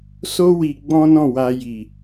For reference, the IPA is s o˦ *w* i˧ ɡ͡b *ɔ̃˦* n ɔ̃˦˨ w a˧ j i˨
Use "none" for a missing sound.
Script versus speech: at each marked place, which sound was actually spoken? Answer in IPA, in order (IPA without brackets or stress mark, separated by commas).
w, ɔ̃˦